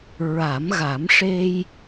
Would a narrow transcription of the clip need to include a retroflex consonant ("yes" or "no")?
yes